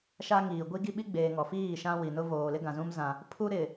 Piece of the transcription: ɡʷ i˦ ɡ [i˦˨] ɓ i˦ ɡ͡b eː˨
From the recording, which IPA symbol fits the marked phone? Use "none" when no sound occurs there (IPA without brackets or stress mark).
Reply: i˦